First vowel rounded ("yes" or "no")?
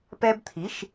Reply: no